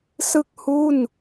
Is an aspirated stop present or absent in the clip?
absent